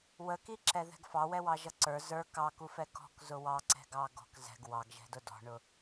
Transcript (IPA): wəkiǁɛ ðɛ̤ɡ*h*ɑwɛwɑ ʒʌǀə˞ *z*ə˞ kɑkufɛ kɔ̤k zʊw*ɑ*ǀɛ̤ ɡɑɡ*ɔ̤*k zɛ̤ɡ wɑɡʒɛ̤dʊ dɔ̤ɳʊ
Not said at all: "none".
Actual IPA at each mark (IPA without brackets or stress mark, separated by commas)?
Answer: f, z, ɑ, ɔ̤